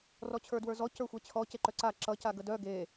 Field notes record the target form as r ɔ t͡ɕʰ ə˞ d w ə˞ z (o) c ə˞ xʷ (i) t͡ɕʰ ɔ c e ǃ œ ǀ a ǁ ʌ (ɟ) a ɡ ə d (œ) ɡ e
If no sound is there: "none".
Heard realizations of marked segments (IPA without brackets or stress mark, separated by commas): ɔ, e, c, œ